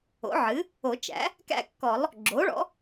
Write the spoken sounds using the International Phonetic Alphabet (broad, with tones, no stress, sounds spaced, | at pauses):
o̰˩˥ ʕ ɨ˩˥ | o˨˩˦ t͡ʃ æ̰˩˥ | k æ̰˥˧ kː ɔ˨˩˦ lˠ | ɡ͡ǁ o˩˥ ɭ ɔ̰˩˥